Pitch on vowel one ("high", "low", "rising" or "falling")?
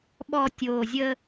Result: low